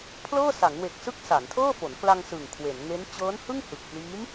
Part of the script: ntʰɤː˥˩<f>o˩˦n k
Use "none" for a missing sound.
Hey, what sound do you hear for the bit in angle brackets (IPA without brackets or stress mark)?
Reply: f